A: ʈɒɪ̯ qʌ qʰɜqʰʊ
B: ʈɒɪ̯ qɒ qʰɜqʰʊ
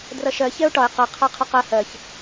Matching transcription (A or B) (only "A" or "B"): A